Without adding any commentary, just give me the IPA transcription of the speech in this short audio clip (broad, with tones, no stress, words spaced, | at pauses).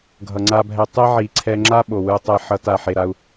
ɡʱʌ˩ŋ͡ǀa˨bʱɛ˨ tˤe˦ʕi˩ǀʰɛ˨ŋ͡ǁa˦ ɓo˩wɯ˨tˤɛ˨ ħʌ˨t a˩ħe˩ɾa˨u̯